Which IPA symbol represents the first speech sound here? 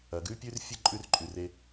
ɐ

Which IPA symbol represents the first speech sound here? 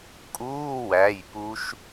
kʼ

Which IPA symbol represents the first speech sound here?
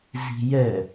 z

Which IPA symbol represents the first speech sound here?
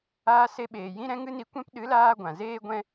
aː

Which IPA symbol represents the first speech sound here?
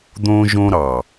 d̪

